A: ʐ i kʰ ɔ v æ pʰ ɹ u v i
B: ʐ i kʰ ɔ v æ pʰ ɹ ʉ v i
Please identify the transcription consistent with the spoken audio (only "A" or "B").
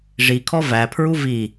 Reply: A